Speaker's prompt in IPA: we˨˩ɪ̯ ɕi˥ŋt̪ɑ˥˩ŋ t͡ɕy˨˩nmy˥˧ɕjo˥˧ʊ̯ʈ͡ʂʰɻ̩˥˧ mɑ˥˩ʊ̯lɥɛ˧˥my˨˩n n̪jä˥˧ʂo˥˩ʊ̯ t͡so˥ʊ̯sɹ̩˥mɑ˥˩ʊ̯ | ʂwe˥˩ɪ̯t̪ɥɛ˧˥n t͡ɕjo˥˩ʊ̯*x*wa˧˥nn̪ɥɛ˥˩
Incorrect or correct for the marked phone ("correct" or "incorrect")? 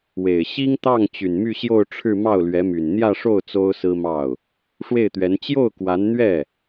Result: incorrect